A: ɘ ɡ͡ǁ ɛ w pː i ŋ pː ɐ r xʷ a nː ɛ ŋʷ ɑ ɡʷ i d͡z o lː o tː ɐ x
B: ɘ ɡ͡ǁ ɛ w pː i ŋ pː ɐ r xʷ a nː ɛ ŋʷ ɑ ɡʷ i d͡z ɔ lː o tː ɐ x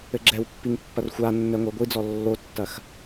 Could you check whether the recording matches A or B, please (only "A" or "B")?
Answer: B